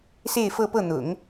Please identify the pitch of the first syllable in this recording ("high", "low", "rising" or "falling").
falling